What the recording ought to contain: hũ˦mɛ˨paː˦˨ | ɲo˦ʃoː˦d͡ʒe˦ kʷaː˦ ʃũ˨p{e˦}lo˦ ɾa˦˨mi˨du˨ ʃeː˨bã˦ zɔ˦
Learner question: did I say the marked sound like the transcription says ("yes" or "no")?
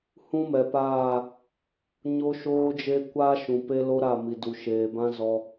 yes